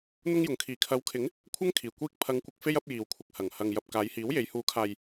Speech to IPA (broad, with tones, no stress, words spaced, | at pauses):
n̪ʊ˥ŋjʊ˨ŋ kʰiː˨˩kʰɐ˨˥wkʰɪ˨˥ŋ | kʷʰɐ˥ŋkʰiː˨˩ kʷiː˧k̚ pʰɐ˨˧ŋkʷɪ˨k̚ fe˥jɐ˨˥p̚jiː˨wkʷʰɪ˨k̚ hɐ˨˩ŋ hɐ˨ŋ jɐ˨p̚ kaː˨˧jhiː˨˥wje˨˧j huː˨˥kʰaː˨j